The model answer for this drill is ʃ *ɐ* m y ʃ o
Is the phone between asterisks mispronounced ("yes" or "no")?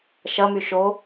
no